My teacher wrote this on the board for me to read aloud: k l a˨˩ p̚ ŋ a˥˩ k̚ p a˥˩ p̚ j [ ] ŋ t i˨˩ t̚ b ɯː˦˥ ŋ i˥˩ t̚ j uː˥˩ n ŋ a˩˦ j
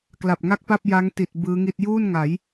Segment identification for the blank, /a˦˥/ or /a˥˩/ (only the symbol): a˦˥